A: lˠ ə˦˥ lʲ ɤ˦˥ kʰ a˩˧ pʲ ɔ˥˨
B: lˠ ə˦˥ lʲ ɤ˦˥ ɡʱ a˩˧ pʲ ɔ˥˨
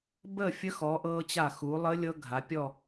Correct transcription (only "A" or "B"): B